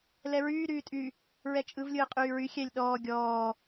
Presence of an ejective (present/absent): present